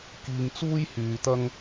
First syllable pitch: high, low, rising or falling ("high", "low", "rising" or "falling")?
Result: low